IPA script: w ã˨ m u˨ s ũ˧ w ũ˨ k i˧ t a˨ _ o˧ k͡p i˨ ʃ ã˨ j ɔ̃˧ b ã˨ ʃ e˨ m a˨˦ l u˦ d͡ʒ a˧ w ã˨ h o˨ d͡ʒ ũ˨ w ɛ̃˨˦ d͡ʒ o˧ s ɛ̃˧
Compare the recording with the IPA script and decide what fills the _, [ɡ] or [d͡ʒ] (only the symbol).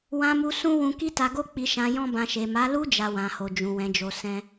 ɡ